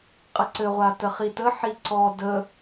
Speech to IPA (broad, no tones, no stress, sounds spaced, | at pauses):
qʼ ɘ ǀ ɘ ʁʷ a t ə χ i t ə ħ i ǀ ɔ d ə